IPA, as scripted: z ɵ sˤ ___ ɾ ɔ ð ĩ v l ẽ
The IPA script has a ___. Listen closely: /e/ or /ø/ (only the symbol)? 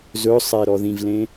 e